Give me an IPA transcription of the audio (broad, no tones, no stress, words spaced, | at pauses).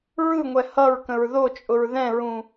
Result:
ɹɯŋʷɛ hʌɹ kə̃ɹðot͡ʃʼʊɹ ðɛ̃ɹũ